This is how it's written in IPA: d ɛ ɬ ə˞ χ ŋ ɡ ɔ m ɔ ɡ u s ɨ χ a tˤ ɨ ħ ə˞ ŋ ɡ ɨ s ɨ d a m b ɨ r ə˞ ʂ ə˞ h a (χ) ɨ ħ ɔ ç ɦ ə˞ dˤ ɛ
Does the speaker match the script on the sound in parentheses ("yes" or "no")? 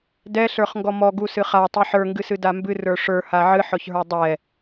no